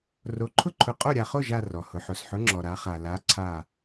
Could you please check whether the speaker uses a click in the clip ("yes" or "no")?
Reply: yes